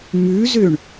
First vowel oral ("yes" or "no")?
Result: yes